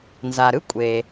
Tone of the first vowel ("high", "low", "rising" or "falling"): low